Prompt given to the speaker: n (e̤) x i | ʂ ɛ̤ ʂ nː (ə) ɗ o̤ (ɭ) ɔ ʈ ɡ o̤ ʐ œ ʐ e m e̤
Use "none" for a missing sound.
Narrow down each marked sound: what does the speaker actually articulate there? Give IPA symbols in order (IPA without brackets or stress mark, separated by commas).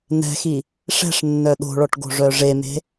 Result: ɛ̤, œ, ɭ